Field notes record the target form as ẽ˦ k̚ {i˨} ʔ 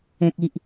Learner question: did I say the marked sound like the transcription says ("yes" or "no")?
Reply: no